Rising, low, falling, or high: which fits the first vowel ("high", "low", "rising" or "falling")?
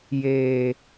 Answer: high